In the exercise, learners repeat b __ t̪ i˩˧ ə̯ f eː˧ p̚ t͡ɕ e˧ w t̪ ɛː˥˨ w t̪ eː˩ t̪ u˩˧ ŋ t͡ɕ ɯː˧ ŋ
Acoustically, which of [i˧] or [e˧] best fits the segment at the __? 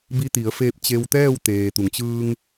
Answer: i˧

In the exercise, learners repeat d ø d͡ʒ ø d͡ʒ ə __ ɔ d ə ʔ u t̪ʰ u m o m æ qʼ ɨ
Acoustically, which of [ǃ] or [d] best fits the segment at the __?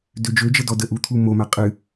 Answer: d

